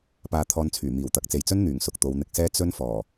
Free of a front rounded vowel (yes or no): no